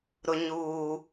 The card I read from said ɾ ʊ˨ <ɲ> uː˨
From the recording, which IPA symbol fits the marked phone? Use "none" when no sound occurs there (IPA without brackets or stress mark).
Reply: ɲ